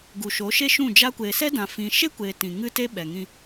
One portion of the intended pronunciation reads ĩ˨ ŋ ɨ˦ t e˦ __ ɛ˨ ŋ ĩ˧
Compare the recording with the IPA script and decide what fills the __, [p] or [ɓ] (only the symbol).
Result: ɓ